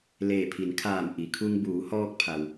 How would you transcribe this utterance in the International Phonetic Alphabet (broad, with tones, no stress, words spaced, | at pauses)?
leː˧˩pʰi˩˧nkʰaː˧˩m ʔi˩˧kʰu˧ŋ buː˩˧hɔː˧k̚pʰa˩w